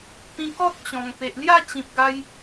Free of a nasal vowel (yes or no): no